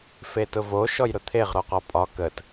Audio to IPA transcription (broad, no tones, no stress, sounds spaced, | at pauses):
f e t ʊ v o ʃ ɔ j ɾ ʊ t̪ʰ e ʁ ɾ ɔ q ɒ pʼ ɒ k ə t